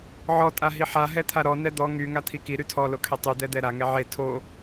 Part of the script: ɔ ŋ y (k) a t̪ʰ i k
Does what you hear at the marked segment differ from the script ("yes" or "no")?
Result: yes